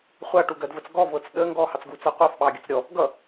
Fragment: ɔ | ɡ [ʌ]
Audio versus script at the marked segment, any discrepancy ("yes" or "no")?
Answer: no